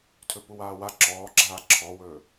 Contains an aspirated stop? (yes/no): yes